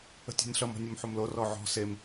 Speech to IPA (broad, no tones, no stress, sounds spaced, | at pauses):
ə̤ tʲ ɔ̤ nʲ ɬ ʌ m ɔ̤ nʲ u m ħ o m l o r ɔ ʕ ɔ̤ s e m